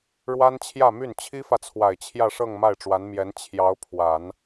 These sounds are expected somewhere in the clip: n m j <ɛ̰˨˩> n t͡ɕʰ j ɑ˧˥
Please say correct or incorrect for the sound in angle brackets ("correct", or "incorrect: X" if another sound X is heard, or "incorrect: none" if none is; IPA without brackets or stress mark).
incorrect: ɛ˧˥